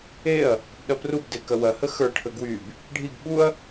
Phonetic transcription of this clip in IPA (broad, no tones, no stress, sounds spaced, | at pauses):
e ɐ̯ | p ə b ɗ ɐ p r u b d e k ɐ w ɐ h ə x ə˞ ʈʰ ə ɡ w y b | ɖʱ i ɡ ɓ u ɐ̯